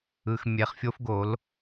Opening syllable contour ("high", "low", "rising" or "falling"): low